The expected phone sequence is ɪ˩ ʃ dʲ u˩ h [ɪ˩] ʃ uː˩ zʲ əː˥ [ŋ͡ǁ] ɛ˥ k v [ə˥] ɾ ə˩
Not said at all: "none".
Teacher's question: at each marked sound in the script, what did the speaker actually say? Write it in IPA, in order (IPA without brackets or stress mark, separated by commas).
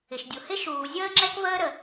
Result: ɪ˥, ŋ͡ǁ, əː˥